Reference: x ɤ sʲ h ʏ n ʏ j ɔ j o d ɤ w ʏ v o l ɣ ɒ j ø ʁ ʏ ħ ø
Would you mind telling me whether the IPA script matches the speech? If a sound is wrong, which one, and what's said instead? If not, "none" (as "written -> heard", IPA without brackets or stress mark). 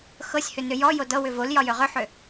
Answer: ɣ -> j